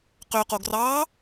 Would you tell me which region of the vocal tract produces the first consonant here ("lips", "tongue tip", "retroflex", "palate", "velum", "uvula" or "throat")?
uvula